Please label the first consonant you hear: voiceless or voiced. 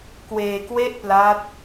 voiceless